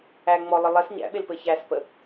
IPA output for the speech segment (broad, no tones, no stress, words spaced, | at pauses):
æ ŋ͡mɔlˠɪ lˠɛs ɲæ̰ɓelpɘ çæspə